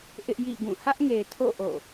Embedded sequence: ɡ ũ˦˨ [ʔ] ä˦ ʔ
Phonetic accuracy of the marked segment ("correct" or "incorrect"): incorrect